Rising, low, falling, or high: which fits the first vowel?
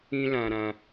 high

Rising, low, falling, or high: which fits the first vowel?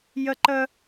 high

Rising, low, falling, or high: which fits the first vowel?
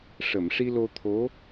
low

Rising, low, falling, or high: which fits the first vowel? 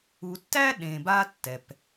low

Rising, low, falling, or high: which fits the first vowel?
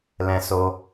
high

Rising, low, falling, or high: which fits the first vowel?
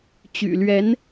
low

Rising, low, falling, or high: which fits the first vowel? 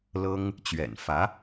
high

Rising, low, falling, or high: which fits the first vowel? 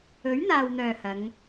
rising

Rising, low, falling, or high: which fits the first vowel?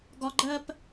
low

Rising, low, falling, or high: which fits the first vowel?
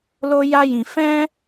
high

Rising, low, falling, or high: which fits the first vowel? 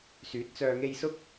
rising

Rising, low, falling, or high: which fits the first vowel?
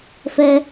high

